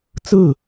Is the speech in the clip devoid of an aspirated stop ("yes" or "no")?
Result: yes